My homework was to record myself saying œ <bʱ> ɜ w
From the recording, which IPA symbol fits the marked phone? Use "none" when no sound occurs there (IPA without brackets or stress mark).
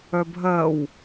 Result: bʱ